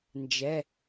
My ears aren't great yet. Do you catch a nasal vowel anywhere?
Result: no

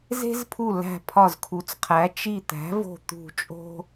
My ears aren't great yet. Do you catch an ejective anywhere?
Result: yes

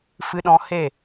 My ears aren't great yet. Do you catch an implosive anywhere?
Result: yes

